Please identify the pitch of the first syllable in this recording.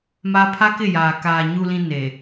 high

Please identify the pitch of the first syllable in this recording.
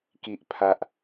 low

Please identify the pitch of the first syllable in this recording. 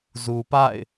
low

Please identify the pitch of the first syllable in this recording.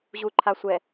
low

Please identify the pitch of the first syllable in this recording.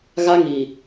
high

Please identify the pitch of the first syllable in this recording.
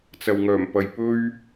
low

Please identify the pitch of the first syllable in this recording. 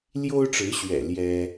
high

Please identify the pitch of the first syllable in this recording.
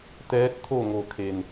rising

